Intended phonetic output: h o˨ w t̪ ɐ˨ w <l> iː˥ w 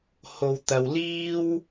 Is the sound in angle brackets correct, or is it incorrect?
correct